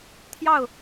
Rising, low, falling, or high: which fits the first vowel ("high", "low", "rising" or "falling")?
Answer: falling